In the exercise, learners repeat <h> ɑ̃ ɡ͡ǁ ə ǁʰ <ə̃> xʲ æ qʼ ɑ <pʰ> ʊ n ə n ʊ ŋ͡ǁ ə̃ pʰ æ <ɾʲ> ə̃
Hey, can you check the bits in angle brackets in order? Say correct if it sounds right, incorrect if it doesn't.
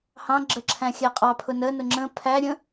correct, incorrect, correct, correct

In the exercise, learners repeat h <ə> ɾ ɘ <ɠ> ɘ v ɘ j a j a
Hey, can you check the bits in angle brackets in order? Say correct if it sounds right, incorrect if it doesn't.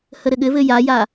correct, correct

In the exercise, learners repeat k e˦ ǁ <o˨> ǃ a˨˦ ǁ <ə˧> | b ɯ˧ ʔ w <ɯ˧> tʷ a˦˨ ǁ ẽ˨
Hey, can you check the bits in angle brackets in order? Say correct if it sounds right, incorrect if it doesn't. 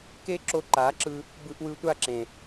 incorrect, incorrect, correct

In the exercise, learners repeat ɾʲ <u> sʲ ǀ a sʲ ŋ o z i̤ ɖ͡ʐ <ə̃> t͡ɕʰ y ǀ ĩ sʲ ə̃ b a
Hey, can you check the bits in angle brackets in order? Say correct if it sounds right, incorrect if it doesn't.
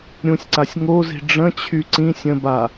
incorrect, correct

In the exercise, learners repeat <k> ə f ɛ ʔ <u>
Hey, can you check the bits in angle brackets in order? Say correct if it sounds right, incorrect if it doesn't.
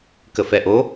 correct, incorrect

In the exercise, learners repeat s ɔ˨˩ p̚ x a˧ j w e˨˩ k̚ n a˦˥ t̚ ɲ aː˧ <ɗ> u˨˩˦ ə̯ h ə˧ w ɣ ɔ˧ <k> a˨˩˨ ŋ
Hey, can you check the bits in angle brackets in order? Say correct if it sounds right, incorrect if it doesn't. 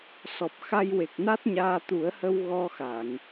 incorrect, incorrect

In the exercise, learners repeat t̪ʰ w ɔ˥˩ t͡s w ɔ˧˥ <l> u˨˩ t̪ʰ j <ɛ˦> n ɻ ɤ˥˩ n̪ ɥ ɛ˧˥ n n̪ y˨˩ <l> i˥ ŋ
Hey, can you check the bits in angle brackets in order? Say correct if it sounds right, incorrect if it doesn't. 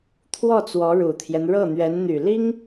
incorrect, correct, correct

